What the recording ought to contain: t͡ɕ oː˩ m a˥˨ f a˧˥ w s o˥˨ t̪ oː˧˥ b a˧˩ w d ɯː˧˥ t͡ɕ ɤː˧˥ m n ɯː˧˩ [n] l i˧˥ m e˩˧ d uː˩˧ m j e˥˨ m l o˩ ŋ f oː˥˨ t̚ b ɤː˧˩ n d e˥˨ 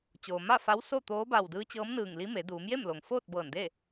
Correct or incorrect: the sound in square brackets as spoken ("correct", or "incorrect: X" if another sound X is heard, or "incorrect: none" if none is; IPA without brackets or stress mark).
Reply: incorrect: ŋ